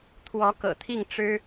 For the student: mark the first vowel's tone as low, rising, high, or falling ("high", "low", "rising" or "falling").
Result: rising